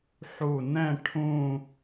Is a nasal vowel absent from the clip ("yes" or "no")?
no